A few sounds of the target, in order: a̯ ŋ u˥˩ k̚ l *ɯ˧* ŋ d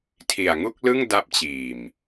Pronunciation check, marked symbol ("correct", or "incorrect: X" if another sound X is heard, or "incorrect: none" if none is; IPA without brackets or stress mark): incorrect: ɯ˥˩